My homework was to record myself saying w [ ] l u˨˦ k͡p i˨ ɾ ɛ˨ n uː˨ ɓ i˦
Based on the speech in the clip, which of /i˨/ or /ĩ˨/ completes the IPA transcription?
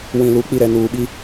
ĩ˨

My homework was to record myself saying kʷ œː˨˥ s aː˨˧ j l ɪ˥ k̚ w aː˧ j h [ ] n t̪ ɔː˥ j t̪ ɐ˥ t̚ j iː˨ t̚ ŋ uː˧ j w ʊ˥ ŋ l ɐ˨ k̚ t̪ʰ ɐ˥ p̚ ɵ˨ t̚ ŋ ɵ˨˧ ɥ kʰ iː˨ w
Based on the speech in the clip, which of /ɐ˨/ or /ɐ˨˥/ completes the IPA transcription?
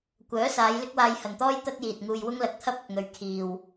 ɐ˨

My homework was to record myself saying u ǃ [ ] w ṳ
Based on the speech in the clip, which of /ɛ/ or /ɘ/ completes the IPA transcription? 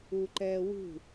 ɛ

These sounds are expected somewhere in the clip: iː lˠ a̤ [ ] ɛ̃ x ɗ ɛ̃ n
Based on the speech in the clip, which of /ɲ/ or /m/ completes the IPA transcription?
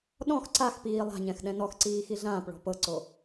ɲ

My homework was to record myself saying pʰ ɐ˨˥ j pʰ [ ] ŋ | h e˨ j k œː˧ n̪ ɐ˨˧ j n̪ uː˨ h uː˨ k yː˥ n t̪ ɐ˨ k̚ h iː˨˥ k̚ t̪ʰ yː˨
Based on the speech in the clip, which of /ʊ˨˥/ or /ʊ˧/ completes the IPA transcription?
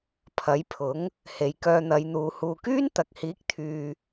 ʊ˨˥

